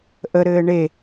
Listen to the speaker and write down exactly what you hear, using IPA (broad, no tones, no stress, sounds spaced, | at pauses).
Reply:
ʔ ə ɾ ɘː ɳ e